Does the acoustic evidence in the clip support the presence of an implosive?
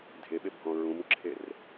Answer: yes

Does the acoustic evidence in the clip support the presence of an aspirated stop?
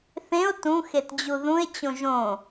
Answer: no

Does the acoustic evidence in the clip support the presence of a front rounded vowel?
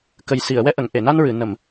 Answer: no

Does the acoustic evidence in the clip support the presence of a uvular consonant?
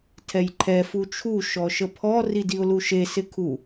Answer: no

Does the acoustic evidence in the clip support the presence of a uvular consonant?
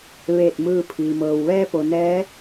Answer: no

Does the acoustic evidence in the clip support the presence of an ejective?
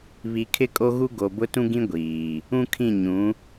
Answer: yes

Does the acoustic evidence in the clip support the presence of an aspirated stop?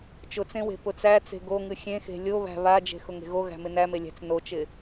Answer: no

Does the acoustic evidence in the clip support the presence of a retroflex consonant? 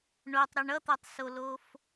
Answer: yes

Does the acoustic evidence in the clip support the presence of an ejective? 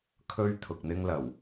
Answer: no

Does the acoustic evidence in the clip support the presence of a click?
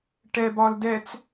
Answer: no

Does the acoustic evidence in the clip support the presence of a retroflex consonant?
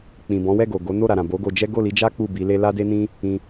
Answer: no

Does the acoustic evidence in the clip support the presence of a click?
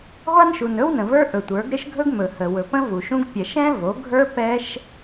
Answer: no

